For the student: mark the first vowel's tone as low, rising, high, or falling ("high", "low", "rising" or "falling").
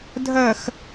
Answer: low